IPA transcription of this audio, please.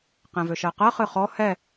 qɛ̃vøʃɜqɜ χɨχɔ hɛ

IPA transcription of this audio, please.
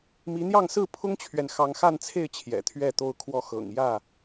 mi˨˦n̪jɑ˥˨ŋsɹ̩˥˨ pʰʊ˦ŋt͡ɕʰɥɛ˨n xɑ˨˦ŋxa˥˨nt͡sʰe˥˨ɪ̯ t͡ɕʰjɛ̰˨˩t̪ʰɥɛ˥˨t̪o˦ʊ̯kʰwɔ˦ xɤ̰˨˩ŋjä˥˨

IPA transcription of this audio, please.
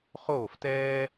χoː˦˨ftɛː˦

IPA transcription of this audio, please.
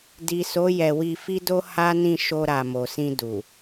di˨so˨˦ jɛ˧ wi˧fi˦do˦ ha˦nĩ˦˨ ʃo˧ɾa˨ mo˨sĩ˧ du˨

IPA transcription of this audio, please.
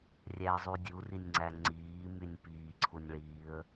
rʲæə̯zˤudʲu rinʲŋ͡ǀæŋ͡ǀiː mynʲpiː ǀʰunʲɭiːə̯

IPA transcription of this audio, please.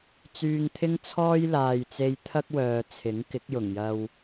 t͡syː˧ŋt̪ʰɪ˥ŋt͡sʰɔː˥j laː˨jt͡se˧jt̪ʰɐ˥k̚wœː˨ t͡sʰɪ˨˥ŋkɪ˨˥k̚jʊ˨˩ŋjɐ˧w

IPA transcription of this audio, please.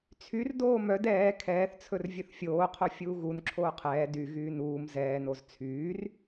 t͡sʰyr doːmœd ɛː kʰɛːθt͡sʰɵr vʲɵθfʲoːqʰo fʲuːɣunǁʰoː qʰɛː dy ɣyːnuːm zɛːnoz t͡sʰyːr

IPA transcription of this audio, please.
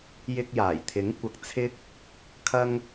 jɪ˧k̚jaː˨˩j t̪ʰɪ˨˥ŋ kʷɐ˨k̚ t͡sʰɪ˥k̚ | kʰɐ˥ŋ

